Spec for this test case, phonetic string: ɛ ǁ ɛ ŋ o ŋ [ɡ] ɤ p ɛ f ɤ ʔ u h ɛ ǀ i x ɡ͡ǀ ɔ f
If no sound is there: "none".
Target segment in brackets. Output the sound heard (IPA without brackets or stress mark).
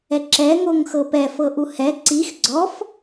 x